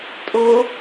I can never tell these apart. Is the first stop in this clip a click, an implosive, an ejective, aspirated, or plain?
ejective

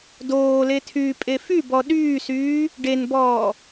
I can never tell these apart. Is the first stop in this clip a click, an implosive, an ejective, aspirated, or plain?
plain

